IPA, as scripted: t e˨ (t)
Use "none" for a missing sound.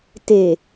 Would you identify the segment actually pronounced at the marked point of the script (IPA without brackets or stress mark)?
none